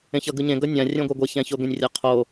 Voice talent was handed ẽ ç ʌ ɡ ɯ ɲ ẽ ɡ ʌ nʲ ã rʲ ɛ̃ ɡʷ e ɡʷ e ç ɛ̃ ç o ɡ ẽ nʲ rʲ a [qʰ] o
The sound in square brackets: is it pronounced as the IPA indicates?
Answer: yes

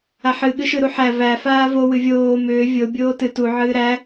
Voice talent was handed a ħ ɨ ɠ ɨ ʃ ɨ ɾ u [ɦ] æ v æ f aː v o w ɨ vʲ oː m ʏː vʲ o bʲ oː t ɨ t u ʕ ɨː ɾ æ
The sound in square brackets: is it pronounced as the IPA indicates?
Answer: no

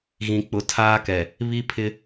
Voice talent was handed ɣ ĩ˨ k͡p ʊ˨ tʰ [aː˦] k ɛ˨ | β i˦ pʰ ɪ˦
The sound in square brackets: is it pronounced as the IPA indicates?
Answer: yes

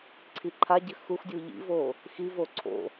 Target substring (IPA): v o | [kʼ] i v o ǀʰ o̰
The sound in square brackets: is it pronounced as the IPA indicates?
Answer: no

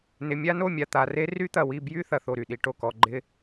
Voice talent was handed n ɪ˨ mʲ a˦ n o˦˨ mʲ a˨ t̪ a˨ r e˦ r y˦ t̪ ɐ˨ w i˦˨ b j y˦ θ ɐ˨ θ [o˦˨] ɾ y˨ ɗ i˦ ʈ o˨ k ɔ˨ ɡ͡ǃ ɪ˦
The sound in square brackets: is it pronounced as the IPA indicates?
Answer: yes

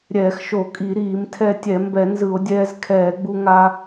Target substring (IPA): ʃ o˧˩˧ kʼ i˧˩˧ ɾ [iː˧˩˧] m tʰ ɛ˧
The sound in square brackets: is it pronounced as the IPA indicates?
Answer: yes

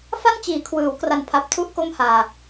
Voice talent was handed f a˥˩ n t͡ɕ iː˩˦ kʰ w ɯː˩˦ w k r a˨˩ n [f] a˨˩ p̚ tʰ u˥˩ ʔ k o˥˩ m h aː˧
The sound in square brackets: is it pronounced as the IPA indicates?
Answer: no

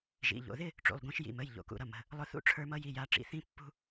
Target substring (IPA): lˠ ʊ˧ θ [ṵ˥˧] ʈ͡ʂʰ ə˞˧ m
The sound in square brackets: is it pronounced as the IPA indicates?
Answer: yes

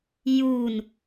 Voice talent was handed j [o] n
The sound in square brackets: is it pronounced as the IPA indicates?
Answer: no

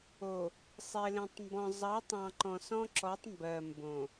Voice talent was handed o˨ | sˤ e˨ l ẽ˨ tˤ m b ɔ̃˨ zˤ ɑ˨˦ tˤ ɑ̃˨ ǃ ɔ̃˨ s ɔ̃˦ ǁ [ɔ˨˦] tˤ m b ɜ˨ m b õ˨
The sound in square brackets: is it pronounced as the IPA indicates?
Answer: yes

